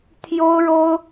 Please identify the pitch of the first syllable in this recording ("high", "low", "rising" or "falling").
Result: high